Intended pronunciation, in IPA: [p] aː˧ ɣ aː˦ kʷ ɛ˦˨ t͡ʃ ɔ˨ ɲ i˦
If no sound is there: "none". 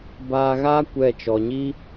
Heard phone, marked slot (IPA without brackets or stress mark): b